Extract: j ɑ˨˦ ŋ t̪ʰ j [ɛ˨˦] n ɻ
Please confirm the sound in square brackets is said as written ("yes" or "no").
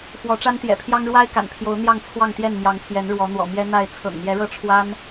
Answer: yes